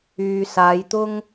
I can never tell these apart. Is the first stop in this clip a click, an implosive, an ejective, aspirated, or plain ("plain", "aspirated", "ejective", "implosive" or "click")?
plain